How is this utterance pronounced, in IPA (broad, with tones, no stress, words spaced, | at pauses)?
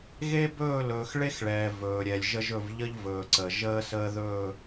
ɣe˦bɵː˦˨ lɵː˨xɭe˦xɭɛː˨ vɵː˨ɾʲɛ˨lʲʒə˦ʒɵ˦˨v ʎə˦ʎvɵː˨ǀə˨ ʒəː˦səː˦ðɵː˦˨